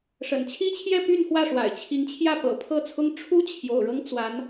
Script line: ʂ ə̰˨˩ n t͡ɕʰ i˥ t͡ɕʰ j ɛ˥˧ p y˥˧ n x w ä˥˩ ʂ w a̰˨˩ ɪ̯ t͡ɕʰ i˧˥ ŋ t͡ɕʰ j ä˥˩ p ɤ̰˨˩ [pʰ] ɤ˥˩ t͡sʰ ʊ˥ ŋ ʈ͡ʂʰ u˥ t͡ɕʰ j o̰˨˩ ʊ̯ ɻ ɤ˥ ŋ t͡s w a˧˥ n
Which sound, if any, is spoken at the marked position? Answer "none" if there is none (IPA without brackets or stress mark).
pʰ